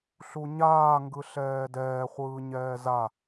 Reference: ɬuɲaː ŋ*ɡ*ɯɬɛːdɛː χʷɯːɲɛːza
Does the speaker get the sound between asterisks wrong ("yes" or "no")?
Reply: no